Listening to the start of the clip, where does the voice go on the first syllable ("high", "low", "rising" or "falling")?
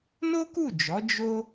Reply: high